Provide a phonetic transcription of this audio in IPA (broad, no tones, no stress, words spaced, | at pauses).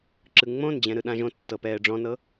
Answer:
ǁɯŋ͡mõnd͡ʑɛ̃ ɾɯɗãʒõtːɤ pɛːɖ͡ʐɔ̃nɤ